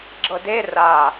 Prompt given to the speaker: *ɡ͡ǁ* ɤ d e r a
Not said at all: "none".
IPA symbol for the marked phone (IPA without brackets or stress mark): ɡ͡ǁ